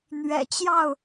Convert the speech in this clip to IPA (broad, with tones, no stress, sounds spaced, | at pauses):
n̪ ɥ ɛ̰˨˩ t͡ɕ j ɑ˥˨ ʊ̯